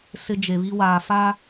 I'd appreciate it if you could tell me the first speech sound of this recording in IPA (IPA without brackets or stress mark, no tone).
s